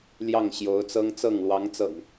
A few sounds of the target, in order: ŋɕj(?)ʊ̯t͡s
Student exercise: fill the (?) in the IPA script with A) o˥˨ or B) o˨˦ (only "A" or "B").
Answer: B